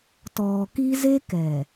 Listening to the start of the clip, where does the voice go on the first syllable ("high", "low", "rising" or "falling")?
low